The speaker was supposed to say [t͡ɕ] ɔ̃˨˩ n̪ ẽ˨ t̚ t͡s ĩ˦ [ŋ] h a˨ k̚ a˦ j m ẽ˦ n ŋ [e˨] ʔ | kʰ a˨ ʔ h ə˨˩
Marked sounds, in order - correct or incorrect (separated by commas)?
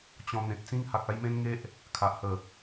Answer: correct, correct, incorrect